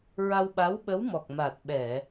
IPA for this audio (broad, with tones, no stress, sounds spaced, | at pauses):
ɹ a˧ w ɓ a˧˥ w ɓ ə˧˥ w m ɔ˨˩ k̚ m a˨˩ t̚ ɓ ɛ˨˩˨